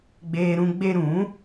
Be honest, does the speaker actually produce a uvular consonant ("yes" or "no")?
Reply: no